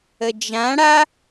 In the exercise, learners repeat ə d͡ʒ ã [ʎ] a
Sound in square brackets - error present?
yes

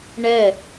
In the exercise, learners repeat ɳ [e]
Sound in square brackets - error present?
yes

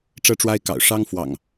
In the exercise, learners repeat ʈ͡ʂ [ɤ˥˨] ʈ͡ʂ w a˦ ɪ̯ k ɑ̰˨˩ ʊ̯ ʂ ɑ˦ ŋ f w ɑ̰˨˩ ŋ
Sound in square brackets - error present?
yes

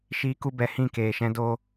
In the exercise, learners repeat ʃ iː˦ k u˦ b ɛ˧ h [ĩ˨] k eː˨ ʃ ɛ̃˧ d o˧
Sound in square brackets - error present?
yes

